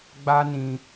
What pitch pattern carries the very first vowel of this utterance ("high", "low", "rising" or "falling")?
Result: high